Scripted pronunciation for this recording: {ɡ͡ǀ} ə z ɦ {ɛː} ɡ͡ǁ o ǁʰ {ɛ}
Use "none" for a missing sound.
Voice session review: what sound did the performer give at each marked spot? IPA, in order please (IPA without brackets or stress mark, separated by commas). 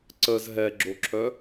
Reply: ǀ, ɛ, œ